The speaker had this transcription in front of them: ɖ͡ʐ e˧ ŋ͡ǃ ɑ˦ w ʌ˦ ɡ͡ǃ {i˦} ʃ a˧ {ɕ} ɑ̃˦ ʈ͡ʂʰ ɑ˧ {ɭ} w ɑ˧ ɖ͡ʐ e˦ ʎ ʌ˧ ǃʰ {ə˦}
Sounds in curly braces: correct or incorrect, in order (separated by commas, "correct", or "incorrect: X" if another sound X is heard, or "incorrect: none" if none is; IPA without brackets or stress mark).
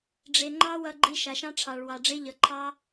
correct, incorrect: ʃ, correct, incorrect: ɑ˦